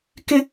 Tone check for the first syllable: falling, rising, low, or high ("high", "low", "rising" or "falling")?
high